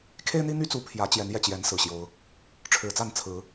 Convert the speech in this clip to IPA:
kʰe˦ɪ̯n̪i˦n̪y˦t͡su˨˦ pʰjä˨˦ t͡ɕjɛ˨˦njɛ˨˩t͡ɕjɛ˨˦n sɹ̩˨˩ɕjo˨˦ʊ̯ | ʈ͡ʂʰɻ̩˨˩t͡sa˥˨n t͡sʰɹ̩˨˦

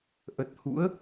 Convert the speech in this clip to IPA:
ʔə˨˩t̚ hṵ˧˥ə̯

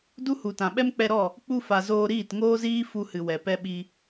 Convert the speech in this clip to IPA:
du˦hu˨tã˨ɓɛ˦m k͡pɛ˧ɾɔ˦˨ | k͡pu˧fa˨ zoː˧ɾiː˦˨tŋoː˦ziː˦ fu˧hɨ˨wɛ˨ pɛ˧ɓi˧

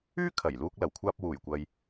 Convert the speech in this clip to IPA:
yː˥ kʰɐ˨˩j luː˧k̚ lɐ˨˩wkʷʰaː˧p̚ wuː˨˩jkʷɐ˨j

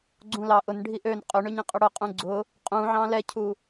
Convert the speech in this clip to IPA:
ɡ͡ǀũlɑ ʔʊn ɖʱiʔøn qʼøɳøɲĩqʼʊ ɽʊqʼũ ɡ͡ǀʊ | qʼũ ʕɑ̃lɛcʰu

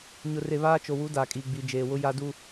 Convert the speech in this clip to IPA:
ɲʊ˨re˨ βaː˦t͡ʃo˨wu˨˦ daː˨kʼiː˨ɡ͡bi˨ d͡ʒeː˨wʊ˦ ja˦du˦

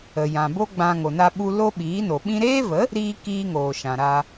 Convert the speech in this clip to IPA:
ə˨jã˨bo˦ ɡ͡bã˧ ŋo˨na˧ɓu˧ lo˦ɓiː˨˦no˨ ɓĩ˧ɾeː˦və˨˦ | ɾiː˦ kiː˦ŋoː˨ʃã˨ ɾa˧

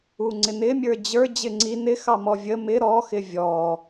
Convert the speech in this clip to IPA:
uŋ͡ǀɪnɪ mʲə˞d͡ʑə˞ d͡ʑɪŋ͡ǀi nɪ xɑmɔvʲə mɪ ɾɔ xɪvʲɔ

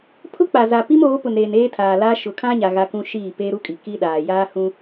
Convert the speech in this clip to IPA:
pʰʊ˦k͡pa˨za˨ pi˦moː˨˦pʊ˨nɾeː˨n eː˦tʰaː˨la˦ ʃʊ˨kʰã˦ɲa˨ ɣa˦kũ˦ ʃiː˦˨ peː˦ɾu˦kʼi˨ ki˦ɗaː˨ jaː˦hũ˦

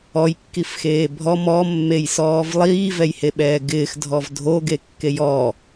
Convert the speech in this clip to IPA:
ɔjkːifxeː bʱɔ mɔmːejsɔːv lˠiːvɛjheɓɛː ɡɪːxdʱɔv dʱoɡekːej ɔ

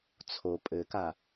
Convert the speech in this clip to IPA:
t͡sʰo pʼɘka

